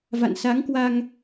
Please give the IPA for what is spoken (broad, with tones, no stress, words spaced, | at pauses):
va̰˧˨nsa˨˦ŋkwa˧ŋ